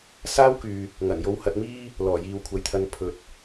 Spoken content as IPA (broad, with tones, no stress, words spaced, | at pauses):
saː˥wkyː˨ | ŋɐ˨˩njo˧w hɐ˧t̚miː˥ | lɔː˨˩jiː˨wkʷʰɐ˨jt̪ʰɐ˧n pʰɵ˨t̚